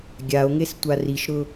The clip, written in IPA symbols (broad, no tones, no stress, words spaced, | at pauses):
ɡʲao̯ŋes tʷariʃɾʊ